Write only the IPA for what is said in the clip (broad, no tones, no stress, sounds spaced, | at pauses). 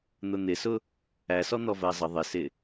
n̪ ʊ n̪ ɪ s ʊ | æ s ɔ n̪ ɔ v ɜ zˤ ə ðˤ ɪ s ɪ